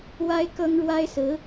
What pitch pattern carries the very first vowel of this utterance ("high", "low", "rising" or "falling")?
high